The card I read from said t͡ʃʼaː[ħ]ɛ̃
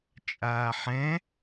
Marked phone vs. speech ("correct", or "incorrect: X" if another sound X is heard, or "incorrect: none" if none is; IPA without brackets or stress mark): correct